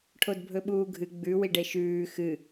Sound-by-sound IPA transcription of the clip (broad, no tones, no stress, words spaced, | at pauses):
ʈʰodbʱɵɓuːɡʱɨ ɡ͡bʉ wiɖeʃʉː xɨ